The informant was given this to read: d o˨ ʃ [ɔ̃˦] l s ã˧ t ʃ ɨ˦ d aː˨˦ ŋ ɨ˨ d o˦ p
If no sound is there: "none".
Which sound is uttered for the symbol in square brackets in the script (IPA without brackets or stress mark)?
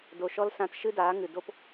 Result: ɔ˦